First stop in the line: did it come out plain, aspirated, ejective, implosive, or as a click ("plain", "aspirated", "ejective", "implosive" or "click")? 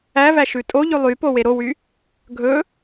ejective